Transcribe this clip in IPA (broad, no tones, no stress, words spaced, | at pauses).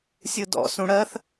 sʲɯdɔ̰ sũɽɜθ